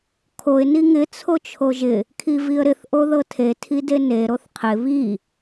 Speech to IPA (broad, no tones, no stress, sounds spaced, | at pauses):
kʰ o ɪ̯ n i ŋ ɪ t͡sʰ o t͡ʃʰ o ʒ ɪ | kʰ i v i ə̯ ɾ ɪ θ ʔ o ð ɤ tʰ e tʰ i d e n e ɾ o θ qʰ ɪ β i